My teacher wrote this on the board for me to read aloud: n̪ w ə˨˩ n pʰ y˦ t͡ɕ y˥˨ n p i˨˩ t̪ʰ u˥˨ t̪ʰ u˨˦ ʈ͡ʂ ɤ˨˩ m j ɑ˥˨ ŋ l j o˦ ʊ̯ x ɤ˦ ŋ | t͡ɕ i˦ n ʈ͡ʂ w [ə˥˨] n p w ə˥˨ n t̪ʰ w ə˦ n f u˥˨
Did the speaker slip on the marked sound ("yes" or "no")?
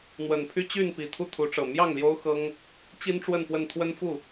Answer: no